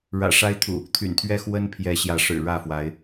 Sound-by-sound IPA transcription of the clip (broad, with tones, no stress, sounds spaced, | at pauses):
ɻ ä̰˨˩ ʂ a˦ ɪ̯ t̪ʰ ṵ˨˩ | t̪ʰ y̰˨˩ n t̪ʰ ɥ ɛ˦ x w ə˦ n pʰ j ɛ˨˦ ɕ j ä˨˦ ʂ ɻ̩˨˩ ɻ ä˥˨ f w a˨˦ ɪ̯